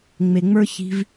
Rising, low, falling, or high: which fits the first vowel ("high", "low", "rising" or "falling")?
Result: low